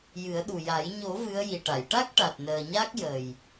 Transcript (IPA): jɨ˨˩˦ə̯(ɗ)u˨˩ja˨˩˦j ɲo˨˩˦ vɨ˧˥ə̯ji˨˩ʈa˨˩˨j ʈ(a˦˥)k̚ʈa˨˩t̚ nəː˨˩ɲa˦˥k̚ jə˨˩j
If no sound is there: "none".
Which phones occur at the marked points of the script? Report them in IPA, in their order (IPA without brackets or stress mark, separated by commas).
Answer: ɗ, a˦˥